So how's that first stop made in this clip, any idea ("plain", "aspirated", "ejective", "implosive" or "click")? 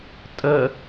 ejective